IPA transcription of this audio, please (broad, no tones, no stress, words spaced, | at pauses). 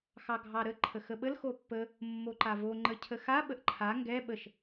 xɑɡʱɑɾə ǃʰəxəɓəl xopːə | mːoǃavo ŋ͡ǃəcʰəxa ɓəʔǃʰa ŋɡɛ ɓəʃ